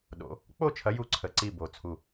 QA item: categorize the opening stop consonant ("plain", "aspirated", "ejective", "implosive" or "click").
implosive